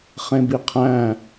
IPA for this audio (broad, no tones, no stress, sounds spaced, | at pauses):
χ ẽ b i qʰ æ̃